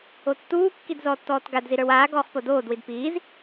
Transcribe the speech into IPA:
otːuːkːid zɔːtːɔːtɡadzi ɾə˞waːɡɔːχ podoːdwid piːz

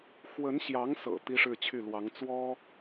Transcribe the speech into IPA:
xwə˧˥nɕjɑ˧˥ŋsɤ̰˨˩ t̪i˥ʂɻ̩˥˧t͡ɕʰy˥˩lwɑ˧˥ŋ t͡swɔ˥

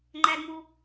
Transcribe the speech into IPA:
ŋ͡ǃædmu

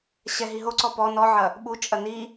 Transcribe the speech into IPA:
ɕɛ ɦiɦoǀɔ pɔ nɔʕɐ | ɓut͡ʃʼɐ ni

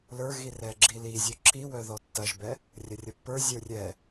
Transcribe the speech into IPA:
lə˞ɣirɛɡ͡ǁi lizʲœ ǁiwœðɔ tːɐʒbɛ | rʲɐrʲɐpːə˞ zʲə˞rʲɛ

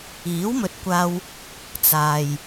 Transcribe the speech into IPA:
iː˨˥wmɵ˨˥t̚kʷaː˧w | t͡saː˨j

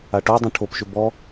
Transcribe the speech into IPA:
aʈodˤũ ʈʰopʃʏ bɔ

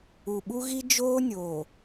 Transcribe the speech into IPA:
u˨ɓu˦ɣi˦ d͡ʒoː˦nʲoː˨

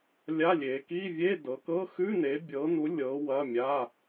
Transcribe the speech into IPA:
lʲa˧˥˧lʲe˨˦ ki˧˥˧vʲe˧˥˧ dɤ˨˦kɤ˧˥˧ xʉ˧˥˧ne˨˦bʲɤ˨˦nu˨˦ lʲɤ˨˦ wɐ˧˥˧mʲa˧˥˧

